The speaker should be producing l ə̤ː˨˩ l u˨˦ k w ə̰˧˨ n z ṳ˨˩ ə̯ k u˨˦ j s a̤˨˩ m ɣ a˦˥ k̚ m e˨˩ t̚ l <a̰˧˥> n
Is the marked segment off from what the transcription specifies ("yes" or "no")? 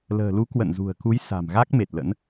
yes